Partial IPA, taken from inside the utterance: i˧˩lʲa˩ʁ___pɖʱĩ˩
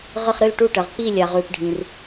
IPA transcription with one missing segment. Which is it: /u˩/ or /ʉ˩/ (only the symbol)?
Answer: ʉ˩